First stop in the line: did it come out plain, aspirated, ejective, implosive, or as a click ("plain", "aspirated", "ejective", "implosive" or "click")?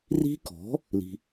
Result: plain